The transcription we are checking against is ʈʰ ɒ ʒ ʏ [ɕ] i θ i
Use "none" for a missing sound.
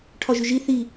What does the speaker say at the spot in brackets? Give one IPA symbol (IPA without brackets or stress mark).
ʒ